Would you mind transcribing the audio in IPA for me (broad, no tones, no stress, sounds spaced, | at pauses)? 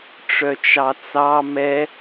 ʈ͡ʂ œ t͡ʃ ɑ t͡s ɑ m ɛ